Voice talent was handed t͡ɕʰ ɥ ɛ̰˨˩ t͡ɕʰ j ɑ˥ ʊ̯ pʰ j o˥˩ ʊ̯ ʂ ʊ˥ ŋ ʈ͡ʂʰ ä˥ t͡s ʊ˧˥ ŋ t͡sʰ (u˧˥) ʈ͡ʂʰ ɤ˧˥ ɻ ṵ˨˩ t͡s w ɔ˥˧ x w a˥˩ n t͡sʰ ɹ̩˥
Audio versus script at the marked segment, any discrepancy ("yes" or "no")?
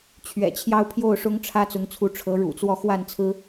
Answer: no